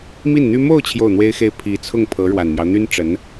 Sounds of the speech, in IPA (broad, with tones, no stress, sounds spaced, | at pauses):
m i˥˩ n n̪ y˥ m o˥˧ ʊ̯ t͡ɕʰ j o˥˩ ʊ̯ n̪ w e˥ ɪ̯ x e˥˩ ɪ̯ pʰ i˧˥ t͡sʰ ʊ˥˩ ŋ pʰ ɤ˧˥ ɻ w a˨˩ n m j ɑ˦ ʊ̯ n̪ y˥ n ʈ͡ʂ ə˧˥ n